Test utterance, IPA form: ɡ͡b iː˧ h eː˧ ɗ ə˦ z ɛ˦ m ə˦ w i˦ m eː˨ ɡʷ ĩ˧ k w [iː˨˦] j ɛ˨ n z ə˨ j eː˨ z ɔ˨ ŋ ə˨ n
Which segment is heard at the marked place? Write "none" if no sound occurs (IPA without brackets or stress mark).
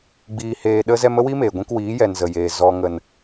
iː˨˦